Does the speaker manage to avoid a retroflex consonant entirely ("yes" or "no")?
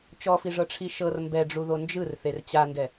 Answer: no